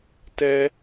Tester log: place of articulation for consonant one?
alveolar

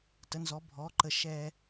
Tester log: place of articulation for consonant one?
alveolar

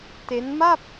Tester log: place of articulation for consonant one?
alveolar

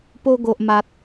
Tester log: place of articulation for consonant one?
labial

